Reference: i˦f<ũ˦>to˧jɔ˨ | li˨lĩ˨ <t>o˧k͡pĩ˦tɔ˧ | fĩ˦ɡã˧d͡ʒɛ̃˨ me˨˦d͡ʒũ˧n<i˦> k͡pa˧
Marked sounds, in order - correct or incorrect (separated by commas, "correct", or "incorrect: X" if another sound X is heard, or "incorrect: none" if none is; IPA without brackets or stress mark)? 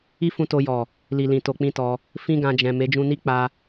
incorrect: ũ˧, correct, correct